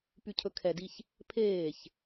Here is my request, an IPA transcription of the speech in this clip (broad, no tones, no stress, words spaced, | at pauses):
pycʰɵkʰɛdiç | pʰeːç